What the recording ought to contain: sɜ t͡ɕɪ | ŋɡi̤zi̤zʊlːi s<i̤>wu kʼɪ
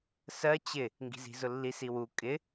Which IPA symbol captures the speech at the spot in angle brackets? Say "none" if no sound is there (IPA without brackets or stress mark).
i